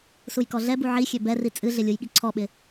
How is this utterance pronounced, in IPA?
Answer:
s u j k ɔ ɮ ɛ b u ʕ i xʲ ø b ɛ r i t͡sʼ ɨ ɮ ɪ lʲ u j ɠ i ǀʰ ɔ ɓ ɪ

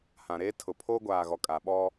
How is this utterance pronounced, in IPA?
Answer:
h ã˨ ɾ eː˦ tʰ ʊ˨ pʰ oː˦ ɡʷ aː˨ ɣ ɔ˨ kʼ a˨ ɓ ɔ˦

